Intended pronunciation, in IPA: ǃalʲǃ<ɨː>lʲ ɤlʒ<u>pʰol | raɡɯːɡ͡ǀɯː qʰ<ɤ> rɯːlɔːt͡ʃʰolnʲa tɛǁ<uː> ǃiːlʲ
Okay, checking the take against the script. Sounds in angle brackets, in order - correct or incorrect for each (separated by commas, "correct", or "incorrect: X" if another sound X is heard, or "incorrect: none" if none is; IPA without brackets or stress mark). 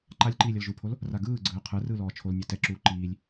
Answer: incorrect: iː, correct, incorrect: ɯ, correct